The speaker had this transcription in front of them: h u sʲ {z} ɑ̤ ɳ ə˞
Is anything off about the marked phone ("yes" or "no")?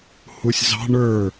no